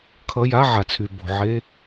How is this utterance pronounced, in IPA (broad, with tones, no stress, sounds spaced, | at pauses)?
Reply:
kʰ ʌ˧˥˧ j a˧˥˧ ʕ a˩ t͡sʰ y˩ b o̤˩ ʕ e˧˥˧